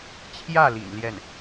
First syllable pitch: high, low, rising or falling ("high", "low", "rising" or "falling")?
falling